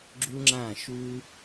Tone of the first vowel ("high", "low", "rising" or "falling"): high